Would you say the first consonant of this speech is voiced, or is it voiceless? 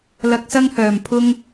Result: voiced